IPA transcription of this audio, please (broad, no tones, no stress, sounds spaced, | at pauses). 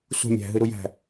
s ṳ mʲ æ̤ ɦ ɨ ɾ u j æ̤